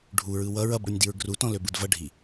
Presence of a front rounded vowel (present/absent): present